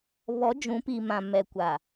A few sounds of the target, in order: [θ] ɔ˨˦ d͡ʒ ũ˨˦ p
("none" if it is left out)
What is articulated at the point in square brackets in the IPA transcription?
β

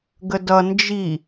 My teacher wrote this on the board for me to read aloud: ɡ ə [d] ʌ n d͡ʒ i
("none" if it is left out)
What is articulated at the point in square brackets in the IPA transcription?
d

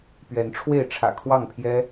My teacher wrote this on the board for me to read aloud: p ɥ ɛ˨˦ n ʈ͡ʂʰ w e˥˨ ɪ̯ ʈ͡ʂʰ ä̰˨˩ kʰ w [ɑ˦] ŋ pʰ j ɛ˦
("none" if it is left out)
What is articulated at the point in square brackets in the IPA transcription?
ɑ˥˨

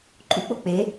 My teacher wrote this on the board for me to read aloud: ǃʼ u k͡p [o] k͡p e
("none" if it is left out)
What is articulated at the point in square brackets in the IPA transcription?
o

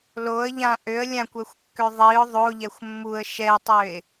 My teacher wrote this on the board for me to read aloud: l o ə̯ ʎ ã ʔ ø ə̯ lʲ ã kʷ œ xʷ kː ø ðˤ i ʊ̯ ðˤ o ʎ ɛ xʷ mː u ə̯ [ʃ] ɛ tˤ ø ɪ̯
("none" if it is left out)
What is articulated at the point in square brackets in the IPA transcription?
ʃ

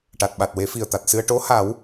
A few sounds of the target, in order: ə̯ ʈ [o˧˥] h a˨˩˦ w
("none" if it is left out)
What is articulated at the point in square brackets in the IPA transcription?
o˧˥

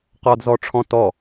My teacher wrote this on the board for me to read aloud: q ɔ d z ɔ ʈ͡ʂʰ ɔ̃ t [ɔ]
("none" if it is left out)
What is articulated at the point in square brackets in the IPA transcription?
ɔ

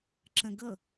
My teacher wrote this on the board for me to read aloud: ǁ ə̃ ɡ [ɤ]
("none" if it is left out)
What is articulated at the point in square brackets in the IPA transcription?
ɤ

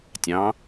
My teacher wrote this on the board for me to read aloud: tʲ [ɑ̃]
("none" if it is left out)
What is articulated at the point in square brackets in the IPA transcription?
ɑ̃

